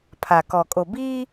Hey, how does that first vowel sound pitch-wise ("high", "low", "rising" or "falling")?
low